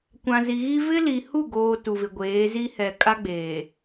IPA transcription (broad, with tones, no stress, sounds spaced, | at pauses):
kʷ ã˨ z i˨ ɣ i˦ v ɪ˦ l i˨ h u˦˨ ɡ oː˨ t u˨ v ɪ˨ ɡʷ eː˨˦ z i˦ h ɛ˨ kʼ a˦ ɡ͡b eː˨